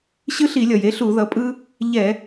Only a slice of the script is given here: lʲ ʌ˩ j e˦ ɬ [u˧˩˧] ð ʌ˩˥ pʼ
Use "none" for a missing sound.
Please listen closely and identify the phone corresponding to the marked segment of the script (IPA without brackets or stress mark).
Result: u˧˩˧